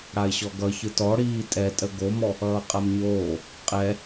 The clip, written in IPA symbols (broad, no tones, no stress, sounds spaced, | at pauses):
ɽ a ɪ̯ ɕ ɔ ɡ ʌ ç ɯ t ɔ ɽ iː tʼ ɛ tʼ ə ɡ o m ɔ | ʌː qʼ a m ɲ oː | qʼ ɛ